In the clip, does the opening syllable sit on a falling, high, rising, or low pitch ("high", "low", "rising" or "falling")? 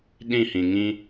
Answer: falling